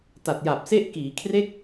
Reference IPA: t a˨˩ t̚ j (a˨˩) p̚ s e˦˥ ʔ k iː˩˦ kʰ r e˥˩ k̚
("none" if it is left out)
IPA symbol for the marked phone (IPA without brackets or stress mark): a˨˩